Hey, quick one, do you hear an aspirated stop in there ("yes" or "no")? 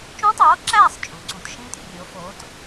no